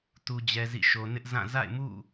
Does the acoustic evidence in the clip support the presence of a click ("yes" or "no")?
no